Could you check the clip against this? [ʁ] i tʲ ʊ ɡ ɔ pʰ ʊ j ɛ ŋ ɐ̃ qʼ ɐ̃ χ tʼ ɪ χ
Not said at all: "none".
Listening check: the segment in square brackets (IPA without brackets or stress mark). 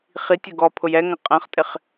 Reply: χ